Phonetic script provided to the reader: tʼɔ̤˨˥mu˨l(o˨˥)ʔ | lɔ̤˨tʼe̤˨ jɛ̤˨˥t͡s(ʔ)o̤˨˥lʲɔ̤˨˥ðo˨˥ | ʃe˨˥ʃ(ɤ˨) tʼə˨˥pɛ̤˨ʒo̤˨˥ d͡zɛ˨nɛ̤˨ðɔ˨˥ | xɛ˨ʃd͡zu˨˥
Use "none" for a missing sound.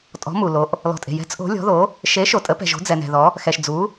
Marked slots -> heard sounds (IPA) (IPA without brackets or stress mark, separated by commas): o˨˥, ʔ, o˨